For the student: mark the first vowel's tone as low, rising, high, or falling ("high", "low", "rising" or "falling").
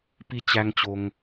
high